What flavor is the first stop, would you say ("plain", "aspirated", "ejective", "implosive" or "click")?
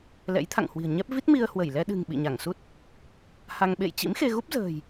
aspirated